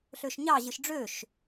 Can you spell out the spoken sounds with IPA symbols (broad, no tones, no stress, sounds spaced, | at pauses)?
ɬ ø ʃ ɲ ɑ ʑ ɯ ʃ ɖ͡ʐ ø ʃ